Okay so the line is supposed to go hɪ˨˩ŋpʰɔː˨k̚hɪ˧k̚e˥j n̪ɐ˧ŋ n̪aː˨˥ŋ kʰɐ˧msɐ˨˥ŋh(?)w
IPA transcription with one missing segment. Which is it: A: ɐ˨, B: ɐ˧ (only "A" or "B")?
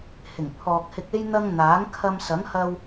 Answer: B